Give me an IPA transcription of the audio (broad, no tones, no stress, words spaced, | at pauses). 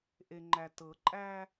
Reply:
ʔeŋ͡ǃætɤǃʼæ